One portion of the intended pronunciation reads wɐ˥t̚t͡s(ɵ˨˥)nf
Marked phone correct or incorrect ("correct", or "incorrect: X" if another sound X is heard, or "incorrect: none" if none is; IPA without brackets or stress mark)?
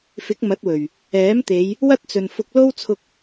incorrect: ɵ˨